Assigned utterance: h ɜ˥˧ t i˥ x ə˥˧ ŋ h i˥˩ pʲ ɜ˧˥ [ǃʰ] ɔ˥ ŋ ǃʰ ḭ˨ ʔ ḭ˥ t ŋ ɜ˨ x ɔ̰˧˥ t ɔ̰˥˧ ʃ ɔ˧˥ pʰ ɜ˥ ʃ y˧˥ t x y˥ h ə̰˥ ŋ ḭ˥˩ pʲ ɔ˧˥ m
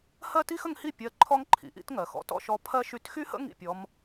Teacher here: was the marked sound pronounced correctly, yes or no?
yes